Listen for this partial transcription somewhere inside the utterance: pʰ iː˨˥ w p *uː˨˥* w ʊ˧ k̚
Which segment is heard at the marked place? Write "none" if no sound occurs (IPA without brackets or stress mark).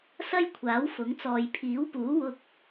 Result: uː˨˥